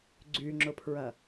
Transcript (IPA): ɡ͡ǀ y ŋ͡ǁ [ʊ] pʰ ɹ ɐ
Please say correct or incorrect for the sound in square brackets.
correct